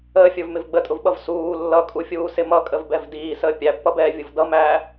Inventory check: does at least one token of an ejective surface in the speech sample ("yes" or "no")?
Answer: yes